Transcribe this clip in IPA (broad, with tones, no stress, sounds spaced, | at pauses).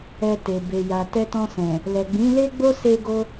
ɛ˧ t e˨ b e˨ j a˨ t ɛ˧ t ɔ̃˧ s ɛ̃˨ | l ɛ˨ ɡ͡b ĩ˨˦ l e˦ ɡ͡b o˦ s e˧ ɡ o˧